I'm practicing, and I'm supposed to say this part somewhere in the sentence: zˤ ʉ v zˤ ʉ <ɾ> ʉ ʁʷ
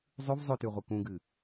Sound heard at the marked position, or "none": t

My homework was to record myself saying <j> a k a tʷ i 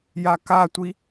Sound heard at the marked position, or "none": j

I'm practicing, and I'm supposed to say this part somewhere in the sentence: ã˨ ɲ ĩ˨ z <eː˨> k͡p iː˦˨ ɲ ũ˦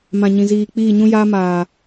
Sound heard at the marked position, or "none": iː˨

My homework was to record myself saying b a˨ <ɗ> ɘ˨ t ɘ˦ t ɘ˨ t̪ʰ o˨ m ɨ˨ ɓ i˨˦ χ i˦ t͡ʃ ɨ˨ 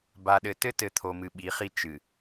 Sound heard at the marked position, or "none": ɗ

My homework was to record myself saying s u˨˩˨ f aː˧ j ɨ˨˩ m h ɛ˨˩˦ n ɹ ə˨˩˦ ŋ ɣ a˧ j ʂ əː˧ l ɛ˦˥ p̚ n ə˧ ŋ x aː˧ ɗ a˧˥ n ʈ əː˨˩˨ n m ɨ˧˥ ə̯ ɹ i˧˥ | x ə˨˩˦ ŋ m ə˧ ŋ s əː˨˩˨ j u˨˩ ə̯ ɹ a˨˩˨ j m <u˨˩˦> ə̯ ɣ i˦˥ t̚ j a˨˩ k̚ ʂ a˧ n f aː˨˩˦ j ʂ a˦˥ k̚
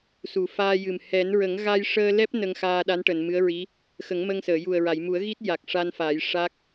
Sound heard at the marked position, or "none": u˨˩˦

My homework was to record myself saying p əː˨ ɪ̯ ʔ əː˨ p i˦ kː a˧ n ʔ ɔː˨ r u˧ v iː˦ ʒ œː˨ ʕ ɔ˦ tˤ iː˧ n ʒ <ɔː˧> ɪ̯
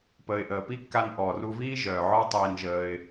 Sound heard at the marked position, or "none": əː˧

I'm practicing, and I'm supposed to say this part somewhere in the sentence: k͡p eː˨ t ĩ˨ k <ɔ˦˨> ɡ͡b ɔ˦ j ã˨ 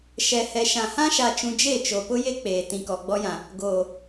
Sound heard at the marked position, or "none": ɔ˨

